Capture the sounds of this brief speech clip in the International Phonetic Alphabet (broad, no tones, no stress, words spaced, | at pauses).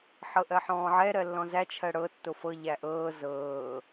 ħɤʔɜħɔ̃ːʕɛ ɾɜlːɔ̃zæ t͡ʃʰɜɽɤ tːofɤ ʎæʔɤː zɤː